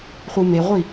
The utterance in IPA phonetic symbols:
χʷɯmeʁʷi

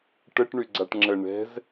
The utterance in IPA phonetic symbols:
ʈəʈ ɳyɡ͡ǀaʈŋ͡ǁə ɳɛ̤z

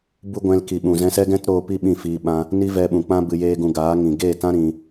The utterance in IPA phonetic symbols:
bu˦ɡʷɛ̃˧lki˨ɓũ˨ zɛ̃˧sɛ˦ɡɛ̃˦t ɾoː˧pi˦ ɓĩ˦˨fiː˧ɓã˦ | ni˦vɛ˧ɓũ˨k͡pã˦ bɨ˧jeː˦ɡũ˧ ɡaː˨˦ŋĩ˨ ɡeː˦˨tã˦ ɾĩ˧

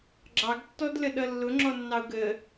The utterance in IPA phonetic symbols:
ɡ͡ǁɑɡtːɔdləɗʌ lːʊŋ͡ǁɔnːɑʊ̯ ɡə

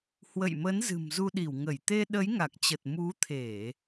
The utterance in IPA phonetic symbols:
hwə̰˧˨jmə˨˦n zɨ̤˨˩mzu˧ɗi˧˩wŋə˧˩j t̪e˧ ɗə˨˦jŋa˨˩k̚t͡ɕə˨˩t̚ mu˨˦t̪ʰe˧˩˨

